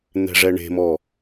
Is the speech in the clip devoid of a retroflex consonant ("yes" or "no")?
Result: no